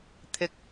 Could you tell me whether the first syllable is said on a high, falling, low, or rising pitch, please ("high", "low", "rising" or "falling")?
low